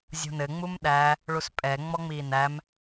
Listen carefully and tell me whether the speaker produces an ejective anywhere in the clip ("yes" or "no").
yes